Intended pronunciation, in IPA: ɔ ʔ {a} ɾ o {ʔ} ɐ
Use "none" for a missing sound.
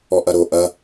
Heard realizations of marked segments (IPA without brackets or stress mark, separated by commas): ɐ, ʔ